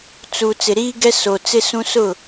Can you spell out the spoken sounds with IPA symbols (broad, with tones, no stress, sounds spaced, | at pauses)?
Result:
t͡s u˨ t͡s ɪ˨ ɾ iː˦ ɡ ɛ˦ s o˨ t͡s ɪ˦ s ũ˦ s ʊ˦˨